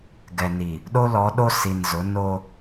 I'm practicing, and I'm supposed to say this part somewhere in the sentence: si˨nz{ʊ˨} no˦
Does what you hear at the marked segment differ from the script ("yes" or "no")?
yes